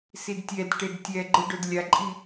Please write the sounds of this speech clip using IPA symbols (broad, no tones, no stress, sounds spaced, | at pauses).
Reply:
s i d tʲ ɛ d ʈ e d tʲ ɛ ɡ͡ǃ ɯ ɖ o d lʲ a ǃʼ i